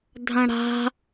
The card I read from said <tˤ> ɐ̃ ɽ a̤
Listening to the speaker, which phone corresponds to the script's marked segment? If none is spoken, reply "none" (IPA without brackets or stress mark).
dʱ